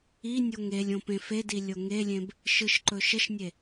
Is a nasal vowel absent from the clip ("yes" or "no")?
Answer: no